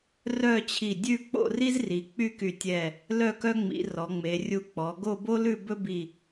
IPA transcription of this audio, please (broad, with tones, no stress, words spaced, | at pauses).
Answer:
rœ˥˧t͡ɕʰi˧˩dʲʉ˥˧ k͡po̰˥˧ri˥zri˩˧ k͡py˥˧ky˧˩tʲɛ˧˩ | lœ˥˧kœ˥ŋ͡mḭ˩˧ rɔ˩˧ŋ͡me˩˧rʲu˧ k͡pɔ˩˧ ɡo˥˧bo˥ lʉ˥˧ bɵ˥bi˧˩